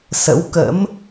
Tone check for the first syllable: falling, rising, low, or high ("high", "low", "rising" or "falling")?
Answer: rising